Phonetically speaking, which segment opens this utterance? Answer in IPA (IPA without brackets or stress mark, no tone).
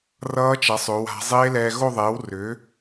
r